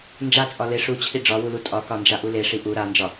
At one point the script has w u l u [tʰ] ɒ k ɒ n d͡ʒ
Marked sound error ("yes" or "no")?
yes